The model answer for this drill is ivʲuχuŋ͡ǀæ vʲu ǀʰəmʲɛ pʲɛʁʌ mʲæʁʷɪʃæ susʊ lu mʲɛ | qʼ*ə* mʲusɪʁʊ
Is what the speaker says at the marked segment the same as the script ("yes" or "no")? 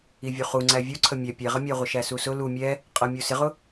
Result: no